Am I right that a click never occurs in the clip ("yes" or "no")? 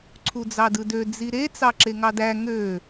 no